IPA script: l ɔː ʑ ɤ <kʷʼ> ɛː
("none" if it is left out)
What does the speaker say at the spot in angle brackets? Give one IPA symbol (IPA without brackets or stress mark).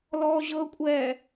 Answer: kʷʼ